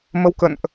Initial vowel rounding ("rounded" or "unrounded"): unrounded